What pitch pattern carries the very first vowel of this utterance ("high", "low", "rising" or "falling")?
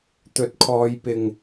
rising